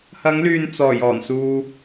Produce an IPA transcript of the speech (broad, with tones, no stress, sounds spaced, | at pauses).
h ɐ˨˧ ŋ l yː˨ n t͡s ɔː˨˩ j ɔː˨˩ n s uː˧